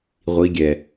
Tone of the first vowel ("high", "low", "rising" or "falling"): rising